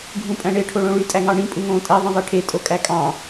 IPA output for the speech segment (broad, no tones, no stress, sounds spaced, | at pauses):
ɡʱ ũ pʼ æ̃ ɳ e ʈʰ o ɭ õ ɭ y tʼ æ ŋ ɑ ɳ ĩ pʼ u ŋ õː tʼ æ ðˤ ĩ ðˤ e ʈʰ e tʼ o kʼ æ kʼ ɑ̃